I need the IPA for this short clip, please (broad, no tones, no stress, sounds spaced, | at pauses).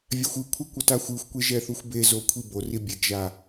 vʲ a xʷ ɯ kʷʰ ɛ kʷ ʌ t a xʷ ɯ xʷ kʷ e ʒ ɛ θ u xʷ b e z o kʷʰ i b o r i bʲ e ɡ ʒ a